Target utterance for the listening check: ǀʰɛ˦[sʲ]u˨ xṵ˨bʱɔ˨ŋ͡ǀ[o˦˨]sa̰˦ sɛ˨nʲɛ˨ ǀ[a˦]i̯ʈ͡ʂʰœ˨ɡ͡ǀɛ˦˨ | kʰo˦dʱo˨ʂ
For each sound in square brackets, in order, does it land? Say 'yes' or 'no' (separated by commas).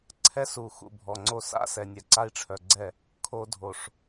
no, yes, yes